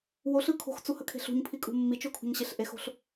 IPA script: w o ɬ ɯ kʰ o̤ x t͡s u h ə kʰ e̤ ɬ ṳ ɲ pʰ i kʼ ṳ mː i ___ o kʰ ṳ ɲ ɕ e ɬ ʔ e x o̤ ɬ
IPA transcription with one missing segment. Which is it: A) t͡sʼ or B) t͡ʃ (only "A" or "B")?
B